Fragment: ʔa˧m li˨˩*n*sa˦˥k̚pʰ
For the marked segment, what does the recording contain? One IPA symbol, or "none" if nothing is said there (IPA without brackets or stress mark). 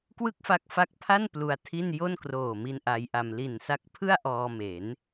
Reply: n